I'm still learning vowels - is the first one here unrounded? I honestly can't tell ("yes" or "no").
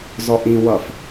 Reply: no